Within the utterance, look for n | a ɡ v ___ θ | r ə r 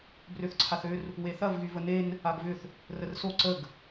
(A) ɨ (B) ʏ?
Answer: B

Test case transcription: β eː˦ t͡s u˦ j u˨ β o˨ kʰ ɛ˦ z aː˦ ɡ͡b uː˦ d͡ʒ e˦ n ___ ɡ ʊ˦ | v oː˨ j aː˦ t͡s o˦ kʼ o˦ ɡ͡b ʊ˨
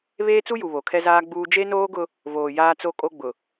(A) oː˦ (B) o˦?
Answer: A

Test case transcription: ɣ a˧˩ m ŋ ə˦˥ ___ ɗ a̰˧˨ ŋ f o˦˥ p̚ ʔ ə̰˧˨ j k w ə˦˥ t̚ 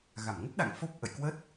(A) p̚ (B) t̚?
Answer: B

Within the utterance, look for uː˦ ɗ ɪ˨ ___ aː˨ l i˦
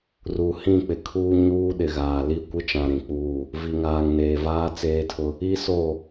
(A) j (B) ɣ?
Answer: B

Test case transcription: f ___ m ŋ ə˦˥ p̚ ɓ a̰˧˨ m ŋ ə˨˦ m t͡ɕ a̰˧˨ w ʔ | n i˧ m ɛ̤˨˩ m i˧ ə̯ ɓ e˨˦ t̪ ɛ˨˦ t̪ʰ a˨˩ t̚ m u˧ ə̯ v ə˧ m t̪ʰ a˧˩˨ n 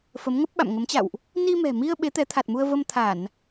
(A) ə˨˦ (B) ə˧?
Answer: A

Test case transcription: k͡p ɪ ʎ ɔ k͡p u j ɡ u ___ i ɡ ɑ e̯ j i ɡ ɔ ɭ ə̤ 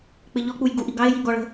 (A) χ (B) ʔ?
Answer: B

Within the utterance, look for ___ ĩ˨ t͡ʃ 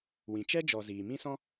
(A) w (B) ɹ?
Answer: A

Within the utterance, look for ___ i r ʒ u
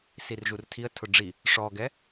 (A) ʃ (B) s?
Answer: B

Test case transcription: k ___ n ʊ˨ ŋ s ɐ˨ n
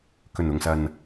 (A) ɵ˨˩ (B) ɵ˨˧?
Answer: A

